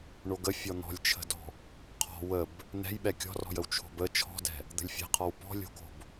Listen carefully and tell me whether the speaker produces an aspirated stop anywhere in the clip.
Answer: yes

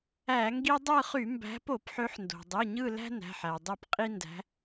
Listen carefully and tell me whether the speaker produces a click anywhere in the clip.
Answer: no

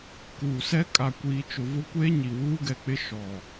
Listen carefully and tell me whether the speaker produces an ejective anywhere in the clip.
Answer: yes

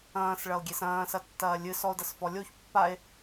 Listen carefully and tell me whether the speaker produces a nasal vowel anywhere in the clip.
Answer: yes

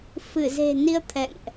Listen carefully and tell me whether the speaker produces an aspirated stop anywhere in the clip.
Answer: yes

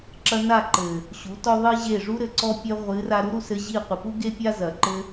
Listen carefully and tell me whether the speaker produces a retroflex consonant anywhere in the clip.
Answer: yes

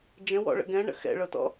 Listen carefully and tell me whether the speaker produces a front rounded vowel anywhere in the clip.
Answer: no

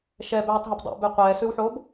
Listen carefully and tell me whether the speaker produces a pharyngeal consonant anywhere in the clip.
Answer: yes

